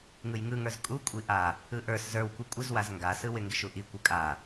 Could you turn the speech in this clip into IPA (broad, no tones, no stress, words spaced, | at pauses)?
ŋɯjŋɯŋə˞z kʼukʷʼi ʔa | ɯʔə˞s zə˞wkʷi kʷʼɪzwaz ŋɡasɯwɪ ŋɡɪʃuʔi kʷɯkʼa